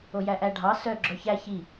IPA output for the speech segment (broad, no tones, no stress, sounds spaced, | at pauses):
o j æ ʔ æ ɖʱ ɑ s œ ɡ͡ǁ œ ç æ ç i